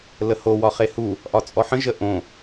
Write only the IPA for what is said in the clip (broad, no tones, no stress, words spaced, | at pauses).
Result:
ləho wɒχehu | ʔɒt͡sʼɔħə̃ ʒəʔõ